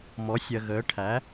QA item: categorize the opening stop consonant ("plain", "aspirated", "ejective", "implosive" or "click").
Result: aspirated